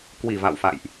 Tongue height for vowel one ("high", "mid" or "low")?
high